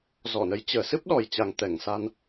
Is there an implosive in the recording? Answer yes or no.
yes